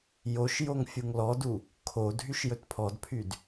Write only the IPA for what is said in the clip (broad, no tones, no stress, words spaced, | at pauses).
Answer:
joʃ joŋfʲuŋlɔdu | kʰo dʱyʃjɵtpʰɔdpʰyd